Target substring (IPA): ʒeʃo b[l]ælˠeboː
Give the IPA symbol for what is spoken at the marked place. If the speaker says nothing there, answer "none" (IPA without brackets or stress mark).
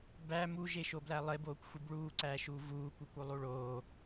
l